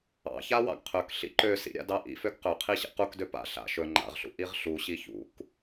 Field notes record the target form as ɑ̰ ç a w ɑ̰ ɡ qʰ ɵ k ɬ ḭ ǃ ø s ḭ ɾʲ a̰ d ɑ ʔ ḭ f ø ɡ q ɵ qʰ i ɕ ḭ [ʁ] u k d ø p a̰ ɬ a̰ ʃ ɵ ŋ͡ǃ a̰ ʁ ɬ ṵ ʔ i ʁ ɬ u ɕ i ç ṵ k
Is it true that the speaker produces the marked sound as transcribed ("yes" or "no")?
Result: no